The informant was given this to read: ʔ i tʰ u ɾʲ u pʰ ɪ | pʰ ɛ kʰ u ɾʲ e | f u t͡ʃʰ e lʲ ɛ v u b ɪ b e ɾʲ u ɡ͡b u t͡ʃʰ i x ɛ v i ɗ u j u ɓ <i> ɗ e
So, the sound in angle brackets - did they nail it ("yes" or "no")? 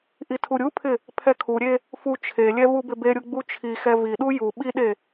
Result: yes